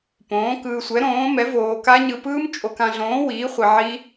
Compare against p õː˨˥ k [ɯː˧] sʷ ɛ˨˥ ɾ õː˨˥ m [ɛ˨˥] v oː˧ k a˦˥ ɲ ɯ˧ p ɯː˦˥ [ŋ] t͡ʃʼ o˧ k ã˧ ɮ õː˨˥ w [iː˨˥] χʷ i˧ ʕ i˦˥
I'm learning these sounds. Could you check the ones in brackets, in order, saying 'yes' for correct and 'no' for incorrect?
yes, yes, no, yes

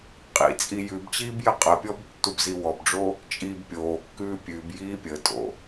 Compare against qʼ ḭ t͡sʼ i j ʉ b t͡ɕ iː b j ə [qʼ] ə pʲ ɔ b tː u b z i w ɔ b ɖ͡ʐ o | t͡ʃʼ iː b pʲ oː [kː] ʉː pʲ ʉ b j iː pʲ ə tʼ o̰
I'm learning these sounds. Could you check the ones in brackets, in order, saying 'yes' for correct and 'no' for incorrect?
yes, yes

